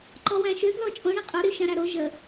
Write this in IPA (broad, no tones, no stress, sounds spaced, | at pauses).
ǃ ɔ w æ̃ ʃ ø ɡ l ɔ t͡ʃʼ õ ɳ ĩ qʼ o ɾ y ʃ ã ɾ æ ɾ o ʒ ə